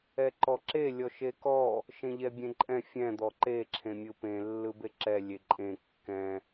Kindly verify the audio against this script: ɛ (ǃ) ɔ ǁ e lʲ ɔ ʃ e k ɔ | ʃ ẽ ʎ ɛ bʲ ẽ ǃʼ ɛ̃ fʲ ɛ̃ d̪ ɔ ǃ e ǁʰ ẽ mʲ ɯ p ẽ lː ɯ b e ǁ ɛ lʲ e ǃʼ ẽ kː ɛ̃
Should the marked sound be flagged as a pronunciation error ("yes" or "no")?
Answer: no